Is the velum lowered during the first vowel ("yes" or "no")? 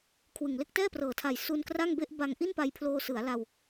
no